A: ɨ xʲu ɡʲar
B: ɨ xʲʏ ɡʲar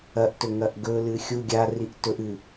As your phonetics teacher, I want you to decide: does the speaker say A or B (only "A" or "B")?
A